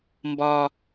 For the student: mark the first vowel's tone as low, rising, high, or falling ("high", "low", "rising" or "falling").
high